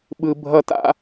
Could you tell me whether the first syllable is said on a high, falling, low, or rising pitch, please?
low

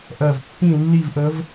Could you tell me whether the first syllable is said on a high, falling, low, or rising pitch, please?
low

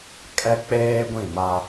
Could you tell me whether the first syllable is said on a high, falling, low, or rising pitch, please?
high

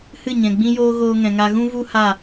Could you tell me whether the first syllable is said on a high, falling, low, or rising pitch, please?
falling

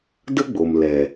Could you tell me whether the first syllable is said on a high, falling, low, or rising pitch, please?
high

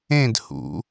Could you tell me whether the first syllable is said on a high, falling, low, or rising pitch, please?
falling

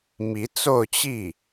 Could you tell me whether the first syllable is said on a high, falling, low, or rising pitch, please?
rising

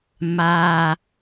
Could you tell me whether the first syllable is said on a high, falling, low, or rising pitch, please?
high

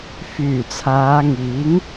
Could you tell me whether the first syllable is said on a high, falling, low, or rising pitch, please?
low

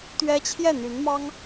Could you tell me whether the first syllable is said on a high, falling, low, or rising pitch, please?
high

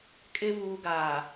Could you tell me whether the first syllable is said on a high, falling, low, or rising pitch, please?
low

